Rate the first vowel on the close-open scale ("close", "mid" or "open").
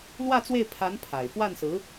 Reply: open